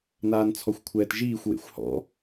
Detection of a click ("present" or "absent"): absent